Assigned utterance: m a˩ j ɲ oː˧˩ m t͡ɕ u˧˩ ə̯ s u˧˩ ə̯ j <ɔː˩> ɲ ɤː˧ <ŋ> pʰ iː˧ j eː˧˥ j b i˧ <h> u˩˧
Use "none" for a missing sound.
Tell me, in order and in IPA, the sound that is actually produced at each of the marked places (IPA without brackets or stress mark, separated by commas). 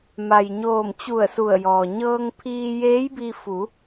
ɔː˩, ŋ, f